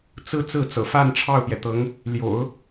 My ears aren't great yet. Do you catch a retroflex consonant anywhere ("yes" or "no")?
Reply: yes